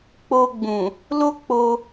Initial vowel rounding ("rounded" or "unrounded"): rounded